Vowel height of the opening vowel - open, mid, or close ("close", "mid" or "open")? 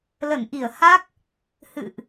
mid